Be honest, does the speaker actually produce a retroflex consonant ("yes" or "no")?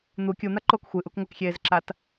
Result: no